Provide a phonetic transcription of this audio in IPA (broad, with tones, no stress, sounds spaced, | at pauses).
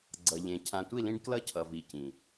ɡ͡ǀ ʌ˨ ʎ ẽ˨ cʰ ã˨ tʷ i˦˨ l ĩ˦ ɖ k l ʌ˦ cʰ ʌ˨ v i˨ c ĩ˨